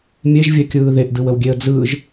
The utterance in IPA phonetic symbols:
mʲ e ʒ vʲ ɛ kʲ ɯː ð e ʔ d ɯ w ə w ɡʲ e ə̯ d͡z ɯː ʒ

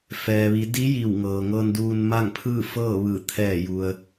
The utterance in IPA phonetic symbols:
f ɛː˩ ʋ i˩˧ d i˧˥ j i˧˩ w ŋ ɤː˩ ŋ ɤː˧ n d uː˧ n m a˥˨ ŋ pʰ ɯː˥˨ f ɤː˥˨ ʋ ɯː˧˩ t̪ʰ ɛː˧˩ j u˩ ə̯

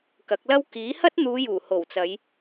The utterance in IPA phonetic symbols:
k ɐ˨˥ k̚ l ɐ˥ w k iː˨˥ h ɐ˥ t̚ n̪ uː˨˧ j uː˨˩ h o˨˩ w t͡s ɐ˨˧ j

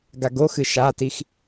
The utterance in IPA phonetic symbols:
ɡ a ɡ o x ɨ ʃ a t i x

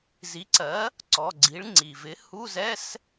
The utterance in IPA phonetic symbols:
z i˩˥ ǀ ɜ˩˥ | ǀ ɔ˩˧˩ ɡ͡ǀ i˩˥ ɭ ŋ͡ǀ i˩ v ɪ˩˥ h u˧˥˧ z ɛ˧˥˧ s

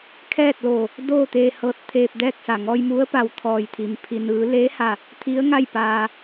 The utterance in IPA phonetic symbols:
kʰ ɛː˥˨ t̚ l oː˧˩ | d oː˥˨ t̪ eː˧ h ɤː˧ t̚ t̪ʰ eː˧ p̚ d ɛː˥˨ k̚ s a˧˩ ŋ ɔː˧ j m u˧˥ ə̯ p a˧˩ w t̪ʰ ɔː˧˩ j t̪ʰ i˩ m pʰ i˩ n ɯː˩˧ l eː˧˥ h a˧˩ | t̪ʰ i˧˥ ə̯ ŋ a˥˨ j p aː˧

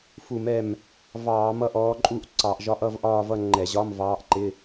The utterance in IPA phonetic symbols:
f u˧˩˧ m ɛ˧˩ m | v ɑː˧˩˧ m ʌ˥˧ ʔ ɔː˧˥ ǃʼ u˥˧ ʔ ǀ ɑ˧˩˧ ʔ ʒ ɒ˧˥ ʔ ʌ˥˧ v ʔ ɒː˥˧ v ʌ˥˧ ŋ͡ǃ ɛ˧˩˧ ʑ ɒ˧˥˧ m v ɑː˧˥ ʔ ǃ ɪ˧˥˧

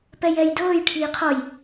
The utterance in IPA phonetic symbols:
p ɛ j ɛ j d ɤː j ʈʰ iː qʰ ɔ j

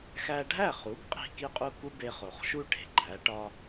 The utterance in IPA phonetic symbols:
x æ˧ ɖʱ æ˥˩ χ u˩˥ ɡ qʼ i̤˥˩ k i˥˩ qʼ u˥˩ k u˥ b e˧ χ o˩ χ ʃ u˥ ʈ e̤˩ ɡ͡ǃ æ˩˥ ʈ ɒ˥

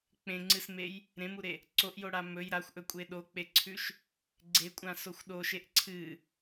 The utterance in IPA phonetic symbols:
k͡p ẽ ŋ͡ǀ ɨ s m e j | ɾ ẽ m u ɾ e | ǀ o ʔ j o ɽ a m ɵ j ɾ a xʷ ʔ ɵ kʷʼ e ɗ o k͡p e ǀʰ ʉ ʃ | ɡ͡ǀ e kʷʼ ã s o xʷ ɗ o ʃ e ʔ ǀʰ ɨ

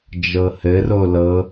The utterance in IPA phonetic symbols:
d͡ʒ ɤ h ɘ r o l ɤ

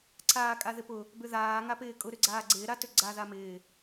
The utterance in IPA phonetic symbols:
ǀʰ aː kʼ a ð ɪ p ʊ | b ʏ ð aː ŋ a p ɪː kʼ ʊ ɾ ʏ ɡ͡ǀ aː ɡ͡ǀ ɪː ɾ a t ʏ ɡ͡ǀ a ð a m ɪː

